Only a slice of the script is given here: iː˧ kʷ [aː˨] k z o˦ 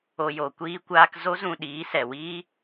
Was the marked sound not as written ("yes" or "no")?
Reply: yes